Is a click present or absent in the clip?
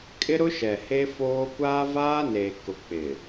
absent